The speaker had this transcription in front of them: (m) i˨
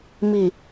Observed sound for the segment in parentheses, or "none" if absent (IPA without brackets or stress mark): m